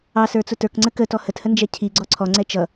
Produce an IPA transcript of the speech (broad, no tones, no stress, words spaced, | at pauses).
ɑsə˞t͡sʊ tə˞kŋ͡ǀə kətɔ həthənd͡ʒɛ cʰiɡ͡ǀɔ ǀʰɔŋ͡ǀɛ t͡ʃʌ